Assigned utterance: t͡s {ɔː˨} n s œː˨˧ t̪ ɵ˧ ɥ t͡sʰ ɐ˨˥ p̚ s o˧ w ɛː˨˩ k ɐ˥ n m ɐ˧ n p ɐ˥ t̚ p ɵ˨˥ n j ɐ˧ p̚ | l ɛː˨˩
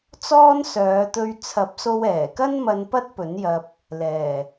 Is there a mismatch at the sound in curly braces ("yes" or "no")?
yes